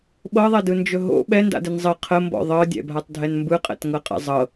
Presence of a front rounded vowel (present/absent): absent